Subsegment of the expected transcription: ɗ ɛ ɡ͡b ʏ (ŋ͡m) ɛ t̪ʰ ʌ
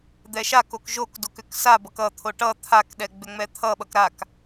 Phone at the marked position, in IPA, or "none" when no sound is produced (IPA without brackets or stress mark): ŋ͡m